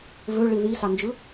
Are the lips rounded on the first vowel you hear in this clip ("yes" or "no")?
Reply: yes